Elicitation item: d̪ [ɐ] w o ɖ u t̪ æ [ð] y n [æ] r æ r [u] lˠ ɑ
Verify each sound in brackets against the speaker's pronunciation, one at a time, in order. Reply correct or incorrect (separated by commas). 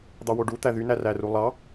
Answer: incorrect, correct, correct, correct